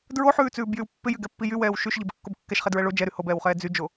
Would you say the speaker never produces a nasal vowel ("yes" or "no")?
yes